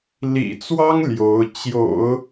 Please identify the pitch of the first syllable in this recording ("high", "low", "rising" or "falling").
low